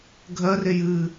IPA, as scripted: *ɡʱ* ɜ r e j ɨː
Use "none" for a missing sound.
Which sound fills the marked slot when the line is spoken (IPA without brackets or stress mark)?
ɡʱ